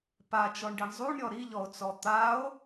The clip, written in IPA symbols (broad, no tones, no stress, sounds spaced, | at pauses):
p a t͡ʃ ɔ ɳ ɖ i ɳ zˤ u ɳ ɾʲ ɔ ɾ i ʎ ɔ o̯ t͡s ɔ t̪ a o̯